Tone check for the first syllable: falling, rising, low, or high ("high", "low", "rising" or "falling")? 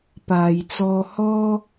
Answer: low